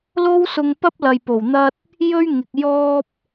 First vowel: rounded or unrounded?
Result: rounded